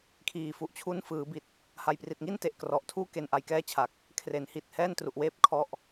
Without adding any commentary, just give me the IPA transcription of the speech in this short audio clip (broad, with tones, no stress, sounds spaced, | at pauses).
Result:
kʰ iː˨˩ f u˨˩ ʔ t͡ɕʰ u˦˥ n f ɯː˩˦ b i˨˩ t̚ | h a˨˩ j p r i˨˩ t̚ ŋ i˥˩ n t e˨˩ ʔ k r ɔ˨˩ ʔ tʰ uː˥˩ k e˧ n ʔ a˧ j k ɛː˥˩ t͡ɕʰ a˨˩ k̚ | kʰ r e˩˦ n h i˨˩ t̚ h ɛː˥˩ n t r u˨˩ ʔ w eː˥˩ p̚ kʰ ɔ˦˥ ʔ